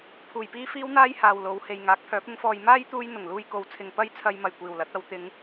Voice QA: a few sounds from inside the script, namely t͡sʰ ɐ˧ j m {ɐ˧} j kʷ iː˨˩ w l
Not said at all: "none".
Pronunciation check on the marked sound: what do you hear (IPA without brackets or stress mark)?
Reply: ɐ˨˩